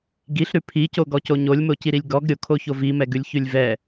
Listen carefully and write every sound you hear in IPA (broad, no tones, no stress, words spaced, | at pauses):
ɡiɬɾʉ pʰicoɡɔco ɲolʲmociɾilʲ ɡɔɡ ɾʲokʰoço vimɛɡʉlʲ çʉlʲvɛ